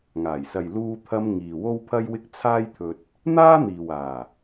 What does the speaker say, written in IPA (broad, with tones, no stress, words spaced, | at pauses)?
ŋaː˨˩jsɐ˨j luː˧t̪ʰɐ˧m ŋiː˨wo˥wpʰɐ˥jwɪ˥k̚ t͡sʰaː˥jt̪ʰɵ˧t̚ | n̪aː˥n̪iː˨waː˨˩